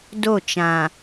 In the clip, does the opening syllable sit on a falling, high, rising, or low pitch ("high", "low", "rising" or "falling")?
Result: falling